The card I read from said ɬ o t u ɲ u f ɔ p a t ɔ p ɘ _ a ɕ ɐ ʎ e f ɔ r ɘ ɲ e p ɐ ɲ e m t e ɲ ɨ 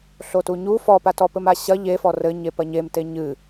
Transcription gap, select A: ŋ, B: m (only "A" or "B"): B